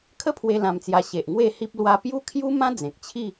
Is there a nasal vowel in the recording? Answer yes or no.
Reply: yes